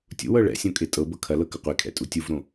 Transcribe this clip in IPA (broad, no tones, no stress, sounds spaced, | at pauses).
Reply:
tʲ ṵ w ɤ ɭ ɛ̰ sʲ õ kʼ e tʼ ɤ b ɤ kʰ ɐ l ɤ k ə qʷ e kʰ ɛ̰ tʼ u tʲ u v ɾ õ